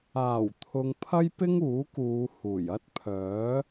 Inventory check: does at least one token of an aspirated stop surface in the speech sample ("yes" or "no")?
yes